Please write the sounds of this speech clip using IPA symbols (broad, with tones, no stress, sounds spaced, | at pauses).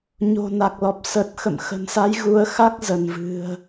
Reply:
ɲ o̤˨˩ n a˨˩ k̚ l ɔ˨˩ p̚ s ə˨˩ t̚ x ə̰˧˨ m x ə̤˨˩ n s a˨˦ j ɣ u˨˦ ə̯ x a˦˥ k̚ z ə˧˩ n v ɨ̤˨˩ ə̯